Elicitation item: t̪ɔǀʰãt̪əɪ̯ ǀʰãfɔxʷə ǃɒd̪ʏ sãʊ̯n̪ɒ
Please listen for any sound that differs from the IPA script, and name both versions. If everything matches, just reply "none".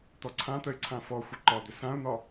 none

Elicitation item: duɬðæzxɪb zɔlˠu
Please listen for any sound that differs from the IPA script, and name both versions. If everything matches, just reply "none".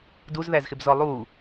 ɬ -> z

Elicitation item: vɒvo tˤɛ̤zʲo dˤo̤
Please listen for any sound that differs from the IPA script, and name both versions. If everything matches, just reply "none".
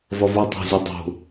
none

